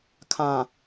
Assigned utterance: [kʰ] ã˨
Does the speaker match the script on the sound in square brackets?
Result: yes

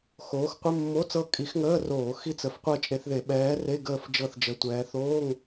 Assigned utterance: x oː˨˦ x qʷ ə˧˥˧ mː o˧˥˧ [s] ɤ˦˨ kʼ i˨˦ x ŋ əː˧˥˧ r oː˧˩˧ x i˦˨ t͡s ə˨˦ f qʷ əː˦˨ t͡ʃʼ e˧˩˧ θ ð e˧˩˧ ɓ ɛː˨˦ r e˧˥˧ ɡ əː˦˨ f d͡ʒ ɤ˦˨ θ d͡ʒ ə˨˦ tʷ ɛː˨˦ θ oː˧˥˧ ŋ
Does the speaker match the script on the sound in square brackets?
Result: no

